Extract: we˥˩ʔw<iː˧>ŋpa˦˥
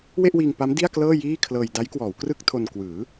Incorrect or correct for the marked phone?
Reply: correct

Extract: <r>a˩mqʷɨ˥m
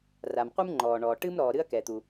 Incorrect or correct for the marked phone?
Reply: correct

